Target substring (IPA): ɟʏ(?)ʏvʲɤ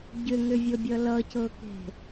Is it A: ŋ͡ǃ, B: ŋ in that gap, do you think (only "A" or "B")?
B